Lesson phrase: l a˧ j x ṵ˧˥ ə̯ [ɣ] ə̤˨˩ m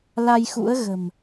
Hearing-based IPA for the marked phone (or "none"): ɣ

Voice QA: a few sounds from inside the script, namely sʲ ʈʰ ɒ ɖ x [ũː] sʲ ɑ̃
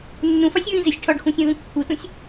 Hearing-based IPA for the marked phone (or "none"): ũ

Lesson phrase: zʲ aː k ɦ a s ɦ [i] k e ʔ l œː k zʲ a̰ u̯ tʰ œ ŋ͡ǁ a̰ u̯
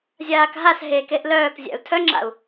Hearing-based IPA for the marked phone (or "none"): e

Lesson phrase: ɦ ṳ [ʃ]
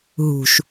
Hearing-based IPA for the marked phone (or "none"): ʃ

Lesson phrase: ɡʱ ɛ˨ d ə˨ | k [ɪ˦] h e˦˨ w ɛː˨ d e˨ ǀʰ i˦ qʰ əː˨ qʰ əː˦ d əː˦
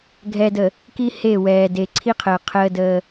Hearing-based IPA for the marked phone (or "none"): i˦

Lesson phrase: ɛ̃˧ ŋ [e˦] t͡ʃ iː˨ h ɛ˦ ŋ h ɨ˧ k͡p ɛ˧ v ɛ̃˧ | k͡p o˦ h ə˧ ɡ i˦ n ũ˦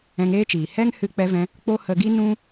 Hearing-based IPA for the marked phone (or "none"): eː˦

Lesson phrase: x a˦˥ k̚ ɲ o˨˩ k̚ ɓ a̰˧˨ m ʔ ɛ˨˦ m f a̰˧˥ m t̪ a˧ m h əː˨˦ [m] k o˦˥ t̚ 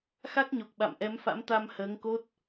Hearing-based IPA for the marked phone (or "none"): ŋ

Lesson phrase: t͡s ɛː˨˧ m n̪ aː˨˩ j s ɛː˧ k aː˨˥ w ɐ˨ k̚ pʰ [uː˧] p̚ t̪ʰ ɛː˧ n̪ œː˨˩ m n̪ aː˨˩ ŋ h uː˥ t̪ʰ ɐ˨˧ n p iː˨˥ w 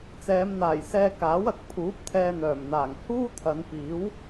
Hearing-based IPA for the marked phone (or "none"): uː˨˥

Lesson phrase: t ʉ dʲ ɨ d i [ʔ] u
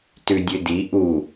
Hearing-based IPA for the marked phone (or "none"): ʔ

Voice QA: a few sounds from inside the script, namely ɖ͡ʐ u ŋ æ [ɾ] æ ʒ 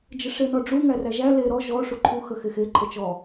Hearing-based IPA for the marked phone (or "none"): r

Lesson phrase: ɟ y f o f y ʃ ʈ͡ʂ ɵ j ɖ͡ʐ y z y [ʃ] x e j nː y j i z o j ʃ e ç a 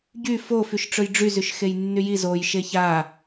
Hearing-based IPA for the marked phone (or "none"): ʃ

